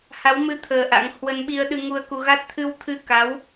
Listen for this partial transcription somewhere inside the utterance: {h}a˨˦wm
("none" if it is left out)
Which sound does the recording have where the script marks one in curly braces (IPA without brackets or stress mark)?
h